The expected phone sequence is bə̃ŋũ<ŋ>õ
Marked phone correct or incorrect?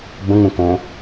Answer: incorrect